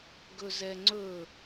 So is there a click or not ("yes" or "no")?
yes